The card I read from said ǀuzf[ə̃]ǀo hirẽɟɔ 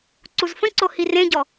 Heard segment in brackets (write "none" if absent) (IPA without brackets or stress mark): ə̃